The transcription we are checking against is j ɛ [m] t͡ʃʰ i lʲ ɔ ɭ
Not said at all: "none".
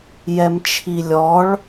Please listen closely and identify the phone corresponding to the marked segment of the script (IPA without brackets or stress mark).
m